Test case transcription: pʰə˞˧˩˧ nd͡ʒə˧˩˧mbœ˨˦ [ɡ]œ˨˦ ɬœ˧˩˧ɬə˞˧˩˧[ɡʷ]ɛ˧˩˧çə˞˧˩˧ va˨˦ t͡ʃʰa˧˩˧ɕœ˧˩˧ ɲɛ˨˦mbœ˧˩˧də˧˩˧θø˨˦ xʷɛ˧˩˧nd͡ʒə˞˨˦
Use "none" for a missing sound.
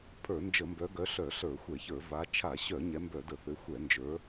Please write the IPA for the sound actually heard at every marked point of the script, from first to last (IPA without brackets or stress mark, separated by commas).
ɡ, xʷ